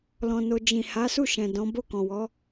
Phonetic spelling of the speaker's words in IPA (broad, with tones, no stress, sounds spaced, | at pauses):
l ɔ̃˧ n o˧ d͡ʒ ĩ˨ h a˨˦ s u˦˨ ʃ ɛ̃˨ d ɔ̃˨˦ b o˦˨ k ɔ̃˨ w ɔ˨˦